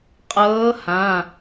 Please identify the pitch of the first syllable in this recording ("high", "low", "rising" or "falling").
rising